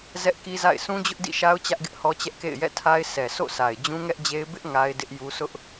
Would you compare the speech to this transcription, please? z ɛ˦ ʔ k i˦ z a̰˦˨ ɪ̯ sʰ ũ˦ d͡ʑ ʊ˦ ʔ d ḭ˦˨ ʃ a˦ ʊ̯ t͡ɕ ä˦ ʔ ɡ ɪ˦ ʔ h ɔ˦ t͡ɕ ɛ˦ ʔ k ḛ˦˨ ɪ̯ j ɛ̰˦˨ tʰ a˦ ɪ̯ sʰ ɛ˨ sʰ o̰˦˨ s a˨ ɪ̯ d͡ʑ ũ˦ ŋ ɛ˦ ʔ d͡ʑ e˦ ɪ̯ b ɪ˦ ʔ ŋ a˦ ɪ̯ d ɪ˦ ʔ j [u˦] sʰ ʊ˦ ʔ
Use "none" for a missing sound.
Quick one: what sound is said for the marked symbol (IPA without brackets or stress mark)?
u˦